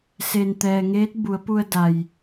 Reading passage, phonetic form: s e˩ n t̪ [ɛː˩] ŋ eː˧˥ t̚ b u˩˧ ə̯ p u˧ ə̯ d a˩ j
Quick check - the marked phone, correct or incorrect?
correct